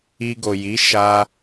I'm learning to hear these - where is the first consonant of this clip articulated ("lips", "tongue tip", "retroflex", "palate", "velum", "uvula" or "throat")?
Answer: velum